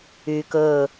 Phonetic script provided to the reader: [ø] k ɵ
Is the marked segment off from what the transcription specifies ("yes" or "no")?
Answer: yes